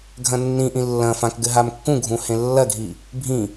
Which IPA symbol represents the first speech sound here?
ɡʱ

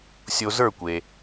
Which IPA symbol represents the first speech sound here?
sʲ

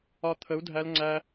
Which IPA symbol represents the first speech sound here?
ɒ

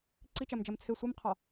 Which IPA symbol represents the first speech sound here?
ǀ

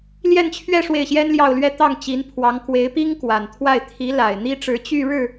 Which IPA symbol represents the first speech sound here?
l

